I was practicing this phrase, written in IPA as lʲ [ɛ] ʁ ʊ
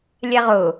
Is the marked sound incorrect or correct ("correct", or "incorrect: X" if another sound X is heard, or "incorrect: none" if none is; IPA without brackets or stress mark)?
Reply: correct